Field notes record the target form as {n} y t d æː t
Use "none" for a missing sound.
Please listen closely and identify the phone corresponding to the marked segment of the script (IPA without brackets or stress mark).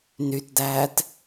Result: n